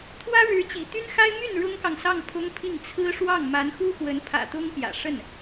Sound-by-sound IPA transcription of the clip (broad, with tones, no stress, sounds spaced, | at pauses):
t̪ʰ w ä˥ ɻ ɻ̩˧˥ t͡ɕ ḭ˨˩ t̪ y˥ n x a˥ ɪ̯ m y˥˩ n ɻ ʊ˥ ŋ k ɑ˨ ŋ s ɑ˥˩ ŋ pʰ ʊ˥ ŋ pʰ i˥˩ ŋ t͡sʰ ɹ̩˥ ʂ w ɑ˥˩ ŋ m a˧˥ n x u˥ x w ə˧˥ n pʰ ä̰˨˩ t̪ ʊ˥ ŋ p j ä̰˨˩ ʂ ə˥˩ n